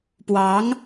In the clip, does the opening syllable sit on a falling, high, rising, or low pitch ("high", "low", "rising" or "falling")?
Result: rising